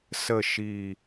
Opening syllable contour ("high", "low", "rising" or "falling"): low